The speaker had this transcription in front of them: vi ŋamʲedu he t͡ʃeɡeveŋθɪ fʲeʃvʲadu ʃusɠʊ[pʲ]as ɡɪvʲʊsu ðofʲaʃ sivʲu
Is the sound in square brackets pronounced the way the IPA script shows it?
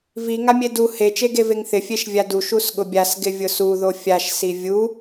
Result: no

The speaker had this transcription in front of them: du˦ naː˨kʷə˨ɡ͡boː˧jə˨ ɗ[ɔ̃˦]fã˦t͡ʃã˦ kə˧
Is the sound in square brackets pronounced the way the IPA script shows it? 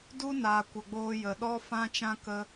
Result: no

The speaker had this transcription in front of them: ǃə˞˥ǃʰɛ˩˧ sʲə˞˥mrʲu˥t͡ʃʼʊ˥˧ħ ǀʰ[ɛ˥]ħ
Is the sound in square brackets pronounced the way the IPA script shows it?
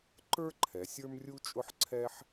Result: yes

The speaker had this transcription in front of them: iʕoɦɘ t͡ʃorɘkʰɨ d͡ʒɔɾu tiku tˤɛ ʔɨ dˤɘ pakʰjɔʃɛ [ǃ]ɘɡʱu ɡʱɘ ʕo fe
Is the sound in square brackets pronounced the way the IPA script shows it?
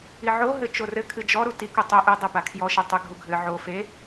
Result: no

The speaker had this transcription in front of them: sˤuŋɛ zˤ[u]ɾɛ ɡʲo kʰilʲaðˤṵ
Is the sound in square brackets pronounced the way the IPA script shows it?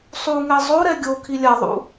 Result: no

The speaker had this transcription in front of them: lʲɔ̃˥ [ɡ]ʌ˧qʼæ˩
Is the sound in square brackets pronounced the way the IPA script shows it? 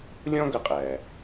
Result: yes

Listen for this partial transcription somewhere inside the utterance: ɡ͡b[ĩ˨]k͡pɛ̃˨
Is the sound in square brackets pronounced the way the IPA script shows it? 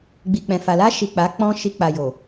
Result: no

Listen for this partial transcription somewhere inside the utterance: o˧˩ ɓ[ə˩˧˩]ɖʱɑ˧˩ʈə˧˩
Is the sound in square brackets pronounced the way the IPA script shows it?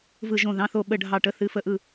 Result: no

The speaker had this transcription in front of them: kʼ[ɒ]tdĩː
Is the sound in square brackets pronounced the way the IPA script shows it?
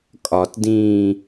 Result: yes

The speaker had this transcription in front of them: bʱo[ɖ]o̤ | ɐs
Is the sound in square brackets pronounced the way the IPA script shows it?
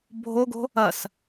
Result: no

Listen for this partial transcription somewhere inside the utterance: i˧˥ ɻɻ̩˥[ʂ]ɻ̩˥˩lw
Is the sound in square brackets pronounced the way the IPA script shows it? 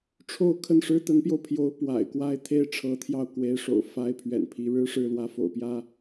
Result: yes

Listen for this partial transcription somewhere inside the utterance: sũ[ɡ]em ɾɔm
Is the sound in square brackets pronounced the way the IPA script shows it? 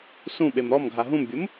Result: no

